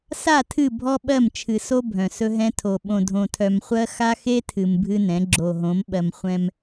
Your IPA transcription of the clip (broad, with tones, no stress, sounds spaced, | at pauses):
s a˦˨ tʰ ɨ˦˨ bʱ ɔ˦ ɓ ɜ˦˨ m t͡ʃʰ ɨ˨ s o˦ bʱ œ̃˨ s ɵ˦ ɦ ɛ̃˦ tʰ o˨ ɓ õ˨ dʱ õ˨ tʰ œ˨ m χʷ ɜ˦ x a˦ x e˦ tʰ ɨ˨ m bʱ ɨ˦ n ɛ̃˨˦ ɡ͡ǁ o˨ ɦ õ˨˦ m ɓ ɜ˨ m χʷ ɛ̃˦ m